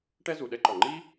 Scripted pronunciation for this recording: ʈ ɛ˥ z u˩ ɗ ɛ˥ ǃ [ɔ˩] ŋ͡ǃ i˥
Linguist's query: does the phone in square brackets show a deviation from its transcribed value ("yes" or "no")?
no